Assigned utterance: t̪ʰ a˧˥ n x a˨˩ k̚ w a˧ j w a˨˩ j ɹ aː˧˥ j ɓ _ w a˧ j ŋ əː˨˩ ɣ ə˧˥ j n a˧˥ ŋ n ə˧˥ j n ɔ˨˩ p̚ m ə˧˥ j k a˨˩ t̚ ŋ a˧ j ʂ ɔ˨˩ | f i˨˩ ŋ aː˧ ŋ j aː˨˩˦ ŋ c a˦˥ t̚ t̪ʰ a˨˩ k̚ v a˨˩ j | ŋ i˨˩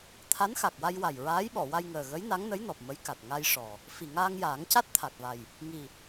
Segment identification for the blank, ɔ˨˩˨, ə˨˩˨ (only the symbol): ɔ˨˩˨